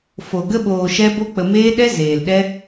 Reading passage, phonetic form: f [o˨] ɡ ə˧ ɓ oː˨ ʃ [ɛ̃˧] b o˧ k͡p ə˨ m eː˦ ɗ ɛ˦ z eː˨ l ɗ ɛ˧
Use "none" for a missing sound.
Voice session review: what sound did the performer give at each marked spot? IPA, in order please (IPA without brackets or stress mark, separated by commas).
o˨, ɛ˧